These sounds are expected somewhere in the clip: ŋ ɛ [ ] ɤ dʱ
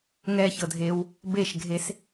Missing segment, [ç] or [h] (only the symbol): ç